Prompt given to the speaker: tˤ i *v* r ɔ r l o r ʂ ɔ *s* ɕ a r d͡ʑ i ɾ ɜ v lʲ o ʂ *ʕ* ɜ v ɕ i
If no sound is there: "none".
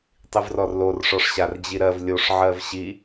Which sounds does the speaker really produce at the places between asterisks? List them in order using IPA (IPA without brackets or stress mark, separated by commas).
v, ʂ, ʕ